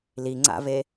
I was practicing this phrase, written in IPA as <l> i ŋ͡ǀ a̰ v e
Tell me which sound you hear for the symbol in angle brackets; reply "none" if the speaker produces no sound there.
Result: l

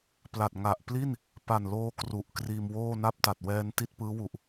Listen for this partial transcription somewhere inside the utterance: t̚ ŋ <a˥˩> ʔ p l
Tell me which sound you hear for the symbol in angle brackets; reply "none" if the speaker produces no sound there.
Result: a˨˩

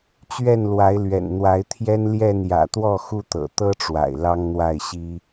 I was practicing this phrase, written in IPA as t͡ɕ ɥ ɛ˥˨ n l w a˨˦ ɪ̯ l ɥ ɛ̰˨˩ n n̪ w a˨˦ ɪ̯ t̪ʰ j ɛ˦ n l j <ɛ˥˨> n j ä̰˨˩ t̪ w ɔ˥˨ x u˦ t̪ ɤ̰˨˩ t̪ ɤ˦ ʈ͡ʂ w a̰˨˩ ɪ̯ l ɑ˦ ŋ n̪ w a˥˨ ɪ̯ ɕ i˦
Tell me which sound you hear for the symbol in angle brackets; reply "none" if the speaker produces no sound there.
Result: ɛ˥˨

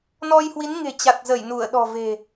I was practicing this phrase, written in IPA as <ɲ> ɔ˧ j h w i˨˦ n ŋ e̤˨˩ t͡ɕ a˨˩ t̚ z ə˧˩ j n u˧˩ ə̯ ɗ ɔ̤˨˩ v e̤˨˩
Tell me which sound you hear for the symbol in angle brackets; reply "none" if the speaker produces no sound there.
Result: n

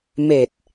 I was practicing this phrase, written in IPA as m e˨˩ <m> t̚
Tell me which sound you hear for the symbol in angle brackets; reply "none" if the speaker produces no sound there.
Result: none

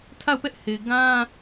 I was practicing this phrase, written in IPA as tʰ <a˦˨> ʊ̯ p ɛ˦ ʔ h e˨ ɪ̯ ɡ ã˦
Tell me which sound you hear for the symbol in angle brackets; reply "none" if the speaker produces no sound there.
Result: a˦˨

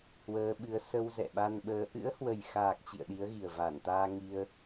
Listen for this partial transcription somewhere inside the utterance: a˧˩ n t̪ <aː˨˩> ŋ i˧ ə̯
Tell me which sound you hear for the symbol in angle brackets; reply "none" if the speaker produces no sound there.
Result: aː˧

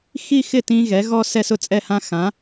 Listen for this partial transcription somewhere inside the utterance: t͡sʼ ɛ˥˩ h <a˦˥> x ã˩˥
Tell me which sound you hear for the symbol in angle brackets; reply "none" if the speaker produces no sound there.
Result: ã˦˥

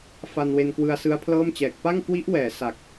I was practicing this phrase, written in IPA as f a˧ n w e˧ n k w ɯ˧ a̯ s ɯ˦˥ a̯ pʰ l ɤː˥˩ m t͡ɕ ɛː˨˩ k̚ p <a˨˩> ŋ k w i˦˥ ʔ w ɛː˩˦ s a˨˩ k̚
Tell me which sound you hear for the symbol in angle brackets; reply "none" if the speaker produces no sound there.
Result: a˥˩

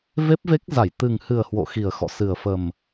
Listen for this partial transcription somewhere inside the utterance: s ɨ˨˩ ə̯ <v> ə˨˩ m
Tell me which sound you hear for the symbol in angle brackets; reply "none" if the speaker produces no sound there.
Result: f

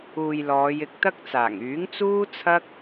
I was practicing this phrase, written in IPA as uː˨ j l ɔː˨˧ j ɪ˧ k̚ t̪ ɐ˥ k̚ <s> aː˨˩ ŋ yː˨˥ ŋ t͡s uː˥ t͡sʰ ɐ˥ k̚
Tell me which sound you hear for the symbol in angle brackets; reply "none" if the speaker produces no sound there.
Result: t͡s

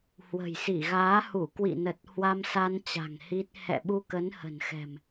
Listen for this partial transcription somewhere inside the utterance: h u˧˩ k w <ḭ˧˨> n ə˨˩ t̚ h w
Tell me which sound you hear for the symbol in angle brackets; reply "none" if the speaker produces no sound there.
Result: ḭ˧˨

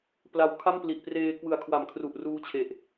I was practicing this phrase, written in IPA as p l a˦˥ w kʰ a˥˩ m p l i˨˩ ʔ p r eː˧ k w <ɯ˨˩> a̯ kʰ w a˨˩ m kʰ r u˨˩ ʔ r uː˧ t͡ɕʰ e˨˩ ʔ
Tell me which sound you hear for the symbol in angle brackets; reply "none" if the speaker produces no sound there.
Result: ɯ˨˩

